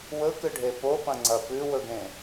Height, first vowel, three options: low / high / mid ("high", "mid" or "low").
mid